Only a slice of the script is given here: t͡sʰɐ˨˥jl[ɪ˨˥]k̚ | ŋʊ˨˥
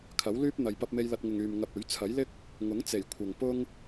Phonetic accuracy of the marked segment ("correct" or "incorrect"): incorrect